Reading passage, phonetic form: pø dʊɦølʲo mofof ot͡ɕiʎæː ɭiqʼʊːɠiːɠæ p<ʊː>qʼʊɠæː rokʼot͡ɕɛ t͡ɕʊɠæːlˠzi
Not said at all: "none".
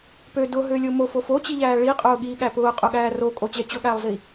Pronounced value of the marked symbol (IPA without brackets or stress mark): ʊː